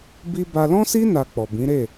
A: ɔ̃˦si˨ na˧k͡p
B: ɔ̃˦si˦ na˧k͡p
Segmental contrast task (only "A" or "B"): B